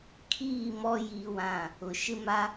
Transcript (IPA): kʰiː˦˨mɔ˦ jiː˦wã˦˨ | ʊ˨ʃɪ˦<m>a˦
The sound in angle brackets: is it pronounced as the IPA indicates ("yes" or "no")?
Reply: yes